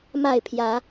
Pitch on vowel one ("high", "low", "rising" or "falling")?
falling